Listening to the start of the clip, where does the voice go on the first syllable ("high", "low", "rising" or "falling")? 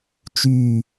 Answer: falling